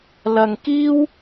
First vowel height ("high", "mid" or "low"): low